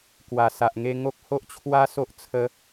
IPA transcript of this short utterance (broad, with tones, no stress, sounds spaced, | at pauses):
k w a˨˩ s a˨ ʔ ŋ e˧ ŋ o˦ k̚ h o˦ ʔ t͡ɕʰ w a˦ s o˦ ʔ t͡sʰ ə˦